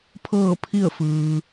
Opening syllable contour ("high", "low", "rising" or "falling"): falling